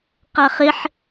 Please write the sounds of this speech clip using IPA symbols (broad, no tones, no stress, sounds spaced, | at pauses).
q a χ ɪ ħ